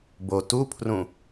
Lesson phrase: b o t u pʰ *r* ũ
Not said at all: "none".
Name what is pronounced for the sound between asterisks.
r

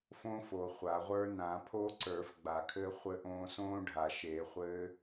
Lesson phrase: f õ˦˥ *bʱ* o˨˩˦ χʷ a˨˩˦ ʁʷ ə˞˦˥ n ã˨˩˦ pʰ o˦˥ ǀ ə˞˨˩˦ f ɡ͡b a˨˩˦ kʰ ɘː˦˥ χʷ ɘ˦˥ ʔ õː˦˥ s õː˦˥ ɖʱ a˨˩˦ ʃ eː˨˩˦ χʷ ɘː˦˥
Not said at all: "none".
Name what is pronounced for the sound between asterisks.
f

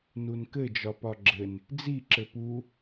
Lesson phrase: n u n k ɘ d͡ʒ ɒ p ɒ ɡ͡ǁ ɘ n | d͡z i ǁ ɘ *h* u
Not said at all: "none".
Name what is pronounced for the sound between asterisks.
p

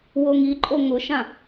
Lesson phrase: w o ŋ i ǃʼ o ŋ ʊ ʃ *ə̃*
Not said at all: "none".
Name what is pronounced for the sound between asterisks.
ã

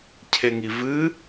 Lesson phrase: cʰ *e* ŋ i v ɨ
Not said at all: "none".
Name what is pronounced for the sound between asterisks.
e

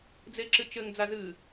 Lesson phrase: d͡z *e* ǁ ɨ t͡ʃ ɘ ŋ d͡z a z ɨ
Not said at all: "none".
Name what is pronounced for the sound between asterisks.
e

